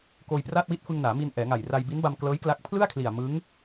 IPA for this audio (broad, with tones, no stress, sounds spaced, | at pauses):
k oː˧ j p r aː˥˩ t̚ w i˥˩ t̚ f ɯ˧ ŋ n aː˩˦ m i˧ n ʔ ɛː˩˦ ŋ a˨˩ j r a˧ j b i˦˥ n b a˧ m k l ɤː˦˥ j k l a˦˥ k̚ pʰ l ɯ˥˩ a̯ kʰ l i˨˩ a̯ m ɯ˦˥ ŋ